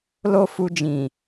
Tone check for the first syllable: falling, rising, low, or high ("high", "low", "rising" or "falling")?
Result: high